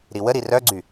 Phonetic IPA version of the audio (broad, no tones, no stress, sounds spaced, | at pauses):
ɾ i w ə ɾ i r œ ɡ͡ǀ y